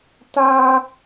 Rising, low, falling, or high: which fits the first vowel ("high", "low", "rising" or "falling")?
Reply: low